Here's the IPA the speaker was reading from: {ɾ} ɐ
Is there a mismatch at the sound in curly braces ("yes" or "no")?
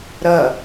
no